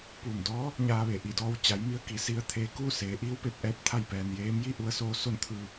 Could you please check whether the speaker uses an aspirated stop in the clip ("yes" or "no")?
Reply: yes